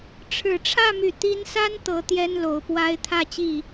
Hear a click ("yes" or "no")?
no